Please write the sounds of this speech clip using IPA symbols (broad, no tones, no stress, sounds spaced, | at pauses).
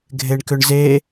ɡʱ e ɳ k ʏ ɳ z e